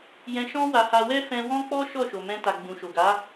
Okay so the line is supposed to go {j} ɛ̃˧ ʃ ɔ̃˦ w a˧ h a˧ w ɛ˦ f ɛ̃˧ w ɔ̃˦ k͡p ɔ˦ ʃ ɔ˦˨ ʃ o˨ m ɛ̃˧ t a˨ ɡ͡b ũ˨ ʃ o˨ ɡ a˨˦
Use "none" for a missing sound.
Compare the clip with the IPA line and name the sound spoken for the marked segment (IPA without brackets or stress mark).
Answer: j